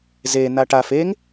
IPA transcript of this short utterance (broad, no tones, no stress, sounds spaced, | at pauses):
z e n a ʈ a f e ŋ